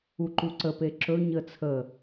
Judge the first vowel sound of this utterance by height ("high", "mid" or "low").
high